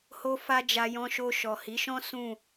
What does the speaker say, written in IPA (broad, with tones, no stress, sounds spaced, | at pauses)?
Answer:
h o˦ f a˦ d͡ʒ a˧ j ɔ̃˧ ʃ o˧ ʃ ɔ˨ h i˨˦ ʃ ɔ̃˦ s ũ˦˨